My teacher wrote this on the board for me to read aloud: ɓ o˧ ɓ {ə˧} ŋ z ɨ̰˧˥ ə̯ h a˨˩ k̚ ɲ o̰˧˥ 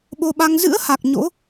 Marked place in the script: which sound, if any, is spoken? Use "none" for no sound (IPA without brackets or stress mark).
a˧